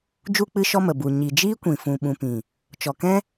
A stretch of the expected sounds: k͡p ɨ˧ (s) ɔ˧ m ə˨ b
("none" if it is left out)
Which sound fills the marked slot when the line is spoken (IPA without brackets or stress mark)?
ʃ